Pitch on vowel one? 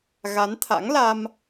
rising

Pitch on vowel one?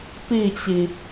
falling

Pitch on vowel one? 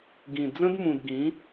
low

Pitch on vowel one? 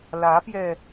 rising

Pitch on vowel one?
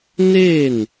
falling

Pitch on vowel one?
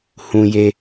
low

